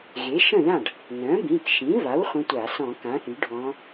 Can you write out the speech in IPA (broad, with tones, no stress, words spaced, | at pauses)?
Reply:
ɣe˩˥ʃə̃˥˩ðã˥˩ɖ | nœ̃˩˥bĩ˩˧˩kʃĩ˩˥va˩˥w χʷə̃˧˥tʷa˧˩˧ sɔ̃˧˩˧kã˩˥θy˩˥ ɖʱɔ̃˧˥